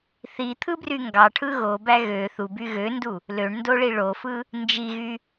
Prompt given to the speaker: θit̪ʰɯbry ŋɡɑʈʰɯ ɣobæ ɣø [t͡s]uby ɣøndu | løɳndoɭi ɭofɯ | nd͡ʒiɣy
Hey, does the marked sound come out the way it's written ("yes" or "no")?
no